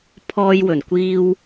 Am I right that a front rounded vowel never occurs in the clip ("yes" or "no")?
yes